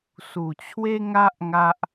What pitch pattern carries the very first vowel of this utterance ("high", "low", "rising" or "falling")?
low